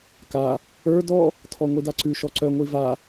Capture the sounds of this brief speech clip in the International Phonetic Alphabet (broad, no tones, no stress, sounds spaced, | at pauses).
k a | ə˞ d ɔ | tʰ ɔ ŋʷ i d a ǀ ʉ ʃ ɔ ǀ œ ŋʷ i v a